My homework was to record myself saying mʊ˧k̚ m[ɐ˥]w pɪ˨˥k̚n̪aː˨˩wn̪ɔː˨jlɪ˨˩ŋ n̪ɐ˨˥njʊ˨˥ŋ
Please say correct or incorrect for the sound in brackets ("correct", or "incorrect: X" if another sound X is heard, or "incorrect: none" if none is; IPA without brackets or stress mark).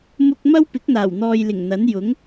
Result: correct